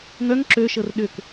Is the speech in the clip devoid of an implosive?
no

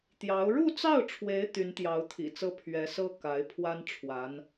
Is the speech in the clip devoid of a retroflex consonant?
no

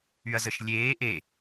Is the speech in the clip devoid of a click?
yes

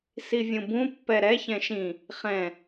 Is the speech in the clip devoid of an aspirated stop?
yes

